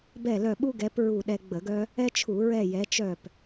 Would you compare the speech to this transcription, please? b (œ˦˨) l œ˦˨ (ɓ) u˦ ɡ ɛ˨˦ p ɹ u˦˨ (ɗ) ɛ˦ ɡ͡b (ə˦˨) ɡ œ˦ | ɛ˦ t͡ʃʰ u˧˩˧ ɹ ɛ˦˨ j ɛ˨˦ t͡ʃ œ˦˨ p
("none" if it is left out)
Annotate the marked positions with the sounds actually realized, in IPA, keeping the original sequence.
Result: ɛ˦˨, ɓ, ɗ, ə˧˩˧

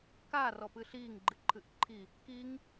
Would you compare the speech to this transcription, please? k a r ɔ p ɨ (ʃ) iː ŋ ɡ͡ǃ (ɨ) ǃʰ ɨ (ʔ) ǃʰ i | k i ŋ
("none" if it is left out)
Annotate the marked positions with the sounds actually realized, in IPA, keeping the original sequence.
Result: ɬ, ɨ, ʔ

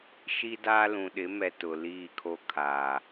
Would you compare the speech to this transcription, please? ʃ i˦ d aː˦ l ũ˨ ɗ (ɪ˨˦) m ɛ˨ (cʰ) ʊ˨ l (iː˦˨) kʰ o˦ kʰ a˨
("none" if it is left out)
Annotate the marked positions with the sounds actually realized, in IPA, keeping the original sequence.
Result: ɪ˨˦, t, iː˦˨

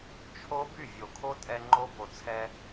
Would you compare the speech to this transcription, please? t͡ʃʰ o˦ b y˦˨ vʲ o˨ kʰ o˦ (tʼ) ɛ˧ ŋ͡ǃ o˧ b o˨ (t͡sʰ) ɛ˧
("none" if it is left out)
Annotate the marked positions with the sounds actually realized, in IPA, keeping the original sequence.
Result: tʼ, t͡sʰ

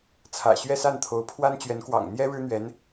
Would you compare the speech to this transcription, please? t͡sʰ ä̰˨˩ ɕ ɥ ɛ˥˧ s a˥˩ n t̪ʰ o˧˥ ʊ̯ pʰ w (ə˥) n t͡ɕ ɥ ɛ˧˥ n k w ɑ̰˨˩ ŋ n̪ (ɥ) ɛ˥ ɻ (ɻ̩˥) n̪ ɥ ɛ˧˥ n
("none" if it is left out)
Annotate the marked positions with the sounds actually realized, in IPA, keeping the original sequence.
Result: a˥, j, ɻ̩˥

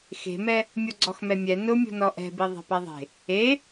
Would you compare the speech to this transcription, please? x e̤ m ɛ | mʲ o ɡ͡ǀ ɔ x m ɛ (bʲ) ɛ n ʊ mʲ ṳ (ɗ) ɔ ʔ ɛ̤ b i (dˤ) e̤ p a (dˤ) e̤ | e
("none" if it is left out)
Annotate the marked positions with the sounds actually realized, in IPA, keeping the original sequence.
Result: mʲ, n, ðˤ, ðˤ

